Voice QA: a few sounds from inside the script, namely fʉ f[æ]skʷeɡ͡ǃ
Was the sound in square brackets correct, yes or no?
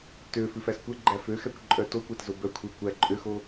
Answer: yes